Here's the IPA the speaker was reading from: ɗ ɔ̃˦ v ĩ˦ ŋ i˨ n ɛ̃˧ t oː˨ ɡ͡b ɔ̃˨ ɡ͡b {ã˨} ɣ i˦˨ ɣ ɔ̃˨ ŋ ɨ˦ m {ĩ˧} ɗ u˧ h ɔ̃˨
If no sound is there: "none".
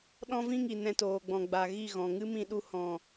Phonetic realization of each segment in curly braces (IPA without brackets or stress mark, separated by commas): a˨, ĩ˧